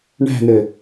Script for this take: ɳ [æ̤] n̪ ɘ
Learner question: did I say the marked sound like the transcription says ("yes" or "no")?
yes